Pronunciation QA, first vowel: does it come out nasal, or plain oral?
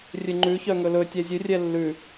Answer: oral